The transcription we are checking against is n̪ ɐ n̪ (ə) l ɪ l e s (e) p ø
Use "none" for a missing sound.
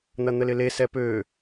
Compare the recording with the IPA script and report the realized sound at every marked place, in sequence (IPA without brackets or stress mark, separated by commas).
ə, ɛ